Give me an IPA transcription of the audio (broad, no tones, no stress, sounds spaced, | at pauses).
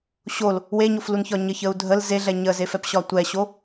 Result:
ɕ o l | w e ɲ o f l u n ç ɒ ɲ ə ç ə u̯ dʱ ə l z e ɮ ɛ ɲ ə z e f ɛ p ɕ ɒ tʷ ɛ ɕ o